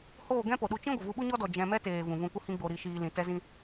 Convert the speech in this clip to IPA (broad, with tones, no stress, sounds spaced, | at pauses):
h oː˦˨ ɡ ɛ̃˦ p o˨ ɗ u˧ t͡ʃ ĩ˦ ɡʷ ə˨ v u˧ ɓ u˦ ɲ ɔ˦ d ɔ˨ d͡ʒ ɛ̃˧ m ɛ˦ t eː˨ v ũ˨ v ũ˧ kʷ ə˦ h ĩ˦ ɡ͡b o˧ ɾ i˧ ʃ iː˧ l ĩ˨ t ɛ˦ z ĩ˦